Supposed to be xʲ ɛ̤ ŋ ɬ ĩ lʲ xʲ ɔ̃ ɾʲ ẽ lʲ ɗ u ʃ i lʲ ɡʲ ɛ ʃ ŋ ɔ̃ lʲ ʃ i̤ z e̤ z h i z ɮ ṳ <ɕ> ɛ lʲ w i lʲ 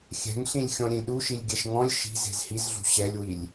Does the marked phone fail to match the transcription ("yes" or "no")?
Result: no